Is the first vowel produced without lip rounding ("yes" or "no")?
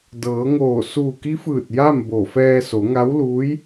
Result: yes